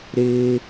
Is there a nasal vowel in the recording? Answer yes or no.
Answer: no